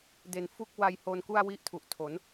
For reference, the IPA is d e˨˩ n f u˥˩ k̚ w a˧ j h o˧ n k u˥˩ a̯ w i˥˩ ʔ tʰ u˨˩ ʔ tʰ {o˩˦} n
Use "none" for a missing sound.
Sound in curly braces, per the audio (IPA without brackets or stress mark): o˩˦